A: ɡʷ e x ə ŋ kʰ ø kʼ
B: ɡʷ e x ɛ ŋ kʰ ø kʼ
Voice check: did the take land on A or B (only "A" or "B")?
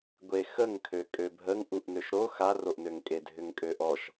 A